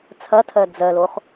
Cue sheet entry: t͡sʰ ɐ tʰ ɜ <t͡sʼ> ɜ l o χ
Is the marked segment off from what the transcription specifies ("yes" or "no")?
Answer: yes